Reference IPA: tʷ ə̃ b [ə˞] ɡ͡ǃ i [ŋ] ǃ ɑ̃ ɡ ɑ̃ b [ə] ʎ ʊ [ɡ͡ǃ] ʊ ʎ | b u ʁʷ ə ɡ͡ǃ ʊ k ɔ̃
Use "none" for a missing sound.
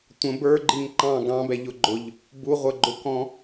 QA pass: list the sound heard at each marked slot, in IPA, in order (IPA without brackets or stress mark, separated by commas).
ə˞, ŋ, ɛ, ɡ͡ǃ